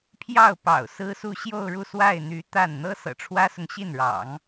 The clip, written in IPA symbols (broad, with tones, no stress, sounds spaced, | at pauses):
pʰ j ɑ˥˩ ʊ̯ p ɑ̰˨˩ ʊ̯ s ɹ̩˥ s u˥˧ ɕ j o˥˧ ʊ̯ ɻ u˥˧ s w a˥˩ ɪ̯ n̪ y˧˥ t̪ a˥˩ n n̪ ɤ˥ s ɤ̰˨˩ ʈ͡ʂʰ w ä˥ s ʊ˨ ŋ ɕ i˥˩ n ɻ ɑ̰˨˩˦ ŋ